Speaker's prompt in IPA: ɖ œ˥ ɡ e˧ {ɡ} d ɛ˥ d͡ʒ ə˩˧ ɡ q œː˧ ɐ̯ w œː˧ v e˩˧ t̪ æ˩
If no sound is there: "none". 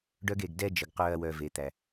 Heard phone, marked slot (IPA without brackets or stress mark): ɡ